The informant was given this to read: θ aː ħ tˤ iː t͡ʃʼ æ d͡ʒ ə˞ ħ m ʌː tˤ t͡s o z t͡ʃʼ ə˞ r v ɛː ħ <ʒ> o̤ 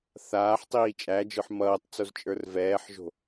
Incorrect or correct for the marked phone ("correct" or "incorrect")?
correct